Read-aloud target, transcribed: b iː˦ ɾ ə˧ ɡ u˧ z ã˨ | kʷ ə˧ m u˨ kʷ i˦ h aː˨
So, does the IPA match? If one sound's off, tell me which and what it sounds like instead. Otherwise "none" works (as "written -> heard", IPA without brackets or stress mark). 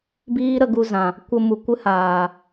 i˦ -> ɨ˦